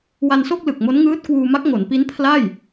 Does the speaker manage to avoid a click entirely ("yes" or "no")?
yes